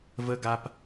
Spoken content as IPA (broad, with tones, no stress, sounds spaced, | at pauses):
v ə˦ ɡ a˦ p